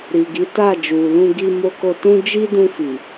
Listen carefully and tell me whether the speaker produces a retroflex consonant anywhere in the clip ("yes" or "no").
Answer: no